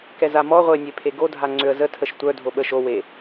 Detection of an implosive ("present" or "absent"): present